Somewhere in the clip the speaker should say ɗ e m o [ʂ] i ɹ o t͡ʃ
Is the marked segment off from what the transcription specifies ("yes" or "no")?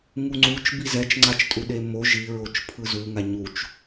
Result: yes